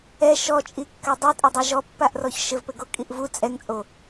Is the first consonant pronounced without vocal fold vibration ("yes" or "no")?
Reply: yes